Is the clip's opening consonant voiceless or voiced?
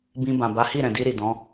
voiced